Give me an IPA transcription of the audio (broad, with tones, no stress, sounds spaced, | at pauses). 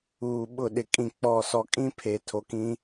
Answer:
uː˨ ɓ ʊ˦˨ ɗ ɪ˨ kʼ ĩ˨ k͡p ɔ˨ s ɔ˨ kʼ ĩ˦ pʰ e˨ tʰ o˨ k ĩ˦